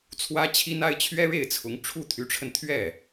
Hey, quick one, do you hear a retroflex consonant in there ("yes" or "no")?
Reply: yes